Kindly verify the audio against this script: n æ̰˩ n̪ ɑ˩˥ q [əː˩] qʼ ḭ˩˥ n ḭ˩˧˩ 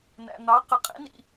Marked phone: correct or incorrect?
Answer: incorrect